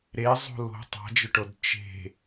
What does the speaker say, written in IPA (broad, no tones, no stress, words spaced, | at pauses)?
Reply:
ɾezˤo̤ lo̤ tˤa̤d͡ʒʏʈod t͡ʃe̤